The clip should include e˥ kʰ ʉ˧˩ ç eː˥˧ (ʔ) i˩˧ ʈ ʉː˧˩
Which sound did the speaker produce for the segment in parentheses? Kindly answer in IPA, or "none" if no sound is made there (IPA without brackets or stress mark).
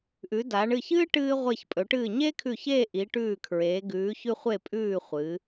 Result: ʔ